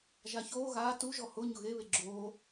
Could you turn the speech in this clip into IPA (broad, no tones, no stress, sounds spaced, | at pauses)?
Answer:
ʒ a ç oː ɣ aː t u ʒ ɔ h ʊ ɲ ʊ ɣ e β e ɡ͡ǁ oː